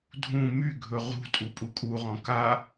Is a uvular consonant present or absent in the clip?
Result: present